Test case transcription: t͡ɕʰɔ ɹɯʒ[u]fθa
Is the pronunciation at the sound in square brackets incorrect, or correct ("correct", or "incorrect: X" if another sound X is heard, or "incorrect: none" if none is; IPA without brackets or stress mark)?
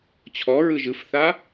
incorrect: ɯ